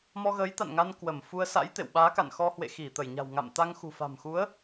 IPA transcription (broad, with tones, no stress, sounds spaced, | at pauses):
m ɔ˧ ɣ əː˨˦ j t̪ a̰˧˨ n ŋ a˧ n k w ə˧˩ m f u˧ ə̯ s a̰˧˥ j t̪ ḛ˧˨ w ɓ aː˨˦ k a̰˧˨ n x ɔ˧ h w ḛ˧˨ x i˧˩ t̪ ə˧˩ j ɲ a̤˨˩ w ŋ a̰˧˨ m t̪ a˧ ŋ x ṳ˨˩ f a̤˨˩ m x u˨˦ ə̯